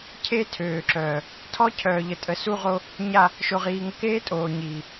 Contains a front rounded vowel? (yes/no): yes